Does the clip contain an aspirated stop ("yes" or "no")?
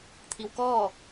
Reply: yes